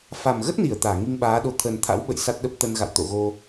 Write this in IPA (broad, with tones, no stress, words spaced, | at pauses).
fa˨˩mɣə˦˥t̚ni˧˩ə̯ t̪aː˧˩ŋi˧ŋɓaː˨˦ɗo˧ t̪ʰə˨˩nt̪ʰa̰˧˥wɓə̰˧˨j sa˦˥t̚ɗə˦˥p̚ t̪ə˧n ɣa̰˧˨w t̪o̰˧˨ɣo˧